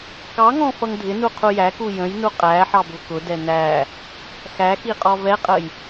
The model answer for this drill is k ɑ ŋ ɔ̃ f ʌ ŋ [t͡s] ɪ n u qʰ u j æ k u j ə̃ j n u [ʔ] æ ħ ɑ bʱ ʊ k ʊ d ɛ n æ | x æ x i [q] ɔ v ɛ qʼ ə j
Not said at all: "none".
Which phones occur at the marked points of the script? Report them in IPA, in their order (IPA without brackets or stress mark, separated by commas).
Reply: dʱ, qʼ, qʼ